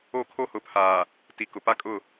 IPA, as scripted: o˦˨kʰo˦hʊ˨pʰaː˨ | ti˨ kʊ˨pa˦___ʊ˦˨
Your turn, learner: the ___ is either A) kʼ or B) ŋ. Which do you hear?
A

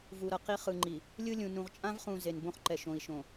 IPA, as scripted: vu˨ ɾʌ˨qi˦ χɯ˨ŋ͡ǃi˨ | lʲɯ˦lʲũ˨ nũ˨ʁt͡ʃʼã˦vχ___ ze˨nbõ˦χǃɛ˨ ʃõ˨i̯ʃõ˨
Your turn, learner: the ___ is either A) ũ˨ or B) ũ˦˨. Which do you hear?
A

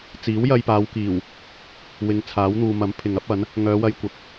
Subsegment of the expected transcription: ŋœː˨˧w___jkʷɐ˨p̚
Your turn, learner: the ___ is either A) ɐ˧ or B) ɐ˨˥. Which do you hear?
A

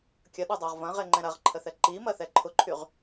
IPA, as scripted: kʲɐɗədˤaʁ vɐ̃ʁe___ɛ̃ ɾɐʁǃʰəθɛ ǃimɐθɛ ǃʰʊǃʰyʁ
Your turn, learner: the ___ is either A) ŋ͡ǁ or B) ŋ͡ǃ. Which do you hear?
B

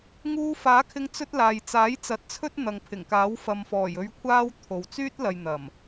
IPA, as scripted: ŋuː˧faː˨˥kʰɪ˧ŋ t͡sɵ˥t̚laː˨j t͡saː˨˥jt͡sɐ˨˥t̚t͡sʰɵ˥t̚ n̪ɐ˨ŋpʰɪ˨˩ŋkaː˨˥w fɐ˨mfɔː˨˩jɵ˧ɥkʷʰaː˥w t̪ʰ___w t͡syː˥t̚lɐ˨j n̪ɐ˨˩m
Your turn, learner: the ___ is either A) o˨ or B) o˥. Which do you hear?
A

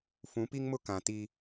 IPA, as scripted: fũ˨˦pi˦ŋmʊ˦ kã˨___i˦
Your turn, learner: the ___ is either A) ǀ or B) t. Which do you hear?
B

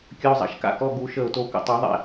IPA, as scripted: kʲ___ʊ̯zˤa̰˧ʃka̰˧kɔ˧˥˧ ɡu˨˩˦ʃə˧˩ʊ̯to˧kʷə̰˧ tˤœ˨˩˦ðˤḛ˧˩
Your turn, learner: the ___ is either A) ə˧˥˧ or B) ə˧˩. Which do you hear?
A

